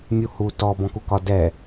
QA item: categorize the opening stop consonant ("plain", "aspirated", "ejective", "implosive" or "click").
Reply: plain